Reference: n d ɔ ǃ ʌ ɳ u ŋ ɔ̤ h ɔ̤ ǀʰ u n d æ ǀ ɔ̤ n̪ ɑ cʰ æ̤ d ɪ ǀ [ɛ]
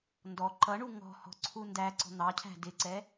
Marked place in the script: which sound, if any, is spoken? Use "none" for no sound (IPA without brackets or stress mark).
ɛ